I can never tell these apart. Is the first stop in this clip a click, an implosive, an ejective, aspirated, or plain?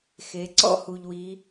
click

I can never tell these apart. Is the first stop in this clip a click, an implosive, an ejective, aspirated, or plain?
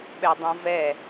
implosive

